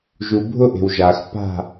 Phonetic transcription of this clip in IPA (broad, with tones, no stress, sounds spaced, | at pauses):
ʒ u˨ bʱ ʊ˦ ʔ e̤˨ w ʒ a˨ x p a̤˦˨